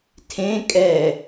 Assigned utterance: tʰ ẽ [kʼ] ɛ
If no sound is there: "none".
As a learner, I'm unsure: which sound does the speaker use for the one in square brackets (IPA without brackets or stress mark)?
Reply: kʼ